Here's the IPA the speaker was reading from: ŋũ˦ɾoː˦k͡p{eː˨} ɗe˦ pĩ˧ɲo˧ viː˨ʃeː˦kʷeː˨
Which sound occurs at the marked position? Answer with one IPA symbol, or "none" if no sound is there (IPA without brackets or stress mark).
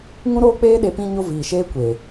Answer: eː˦